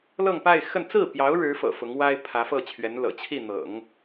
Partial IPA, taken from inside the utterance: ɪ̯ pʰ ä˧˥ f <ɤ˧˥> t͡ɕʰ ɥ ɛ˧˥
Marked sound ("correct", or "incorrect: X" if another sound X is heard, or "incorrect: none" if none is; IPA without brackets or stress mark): incorrect: ɤ˥˩